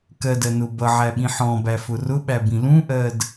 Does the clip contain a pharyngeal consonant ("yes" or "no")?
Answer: yes